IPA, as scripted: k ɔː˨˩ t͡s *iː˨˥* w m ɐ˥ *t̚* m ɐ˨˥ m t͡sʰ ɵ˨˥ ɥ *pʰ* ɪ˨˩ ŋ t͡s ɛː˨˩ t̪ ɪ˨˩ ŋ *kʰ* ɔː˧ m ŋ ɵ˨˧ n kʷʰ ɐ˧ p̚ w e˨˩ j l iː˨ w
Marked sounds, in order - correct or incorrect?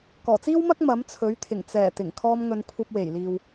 incorrect: iː˥, incorrect: k̚, incorrect: t̪ʰ, correct

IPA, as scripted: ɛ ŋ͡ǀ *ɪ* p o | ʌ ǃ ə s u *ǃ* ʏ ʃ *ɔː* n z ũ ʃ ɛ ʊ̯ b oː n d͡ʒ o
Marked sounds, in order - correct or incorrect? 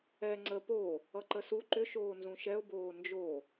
incorrect: ə, correct, incorrect: oː

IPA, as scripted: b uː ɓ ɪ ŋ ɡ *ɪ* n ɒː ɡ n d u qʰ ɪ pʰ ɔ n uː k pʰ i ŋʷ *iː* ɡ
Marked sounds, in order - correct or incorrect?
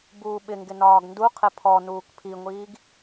correct, correct

